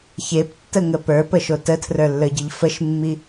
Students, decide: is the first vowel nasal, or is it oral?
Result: oral